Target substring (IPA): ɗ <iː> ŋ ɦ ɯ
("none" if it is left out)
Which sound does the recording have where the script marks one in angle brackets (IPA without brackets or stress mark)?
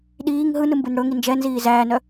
iː